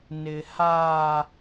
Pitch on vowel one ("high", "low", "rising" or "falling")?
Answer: high